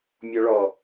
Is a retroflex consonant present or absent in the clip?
present